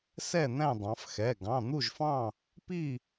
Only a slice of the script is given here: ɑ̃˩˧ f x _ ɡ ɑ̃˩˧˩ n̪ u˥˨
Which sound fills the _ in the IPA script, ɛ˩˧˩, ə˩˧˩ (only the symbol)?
ɛ˩˧˩